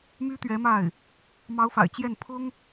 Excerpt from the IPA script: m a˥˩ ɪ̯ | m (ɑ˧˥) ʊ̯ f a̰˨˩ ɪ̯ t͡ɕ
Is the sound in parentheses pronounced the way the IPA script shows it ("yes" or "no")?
yes